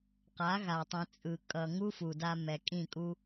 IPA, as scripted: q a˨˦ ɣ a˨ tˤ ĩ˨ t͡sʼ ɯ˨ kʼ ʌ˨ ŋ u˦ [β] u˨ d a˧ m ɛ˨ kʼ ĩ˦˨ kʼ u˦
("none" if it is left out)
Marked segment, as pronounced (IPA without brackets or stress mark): f